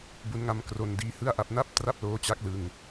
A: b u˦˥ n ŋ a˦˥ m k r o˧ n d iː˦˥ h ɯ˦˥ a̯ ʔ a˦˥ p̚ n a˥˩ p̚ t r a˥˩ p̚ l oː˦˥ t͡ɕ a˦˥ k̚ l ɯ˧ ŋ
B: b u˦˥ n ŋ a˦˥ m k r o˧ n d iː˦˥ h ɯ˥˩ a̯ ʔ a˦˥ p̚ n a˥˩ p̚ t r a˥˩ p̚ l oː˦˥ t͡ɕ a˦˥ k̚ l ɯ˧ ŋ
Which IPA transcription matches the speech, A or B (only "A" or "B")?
B